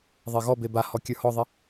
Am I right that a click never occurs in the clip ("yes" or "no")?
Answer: yes